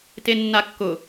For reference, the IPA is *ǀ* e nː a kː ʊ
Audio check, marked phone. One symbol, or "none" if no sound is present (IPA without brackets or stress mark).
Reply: t